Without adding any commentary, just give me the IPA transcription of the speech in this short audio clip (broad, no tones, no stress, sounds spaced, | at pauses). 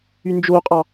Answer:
y n d͡ʒ o qʼ ɑ